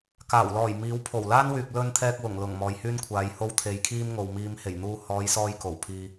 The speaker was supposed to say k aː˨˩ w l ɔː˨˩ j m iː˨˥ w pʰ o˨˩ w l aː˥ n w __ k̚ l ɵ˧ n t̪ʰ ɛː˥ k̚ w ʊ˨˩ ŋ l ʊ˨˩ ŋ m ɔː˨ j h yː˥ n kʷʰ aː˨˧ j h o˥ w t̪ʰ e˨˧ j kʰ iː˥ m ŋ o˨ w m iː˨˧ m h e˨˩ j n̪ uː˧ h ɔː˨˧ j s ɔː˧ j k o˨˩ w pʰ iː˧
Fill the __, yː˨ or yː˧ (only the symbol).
yː˨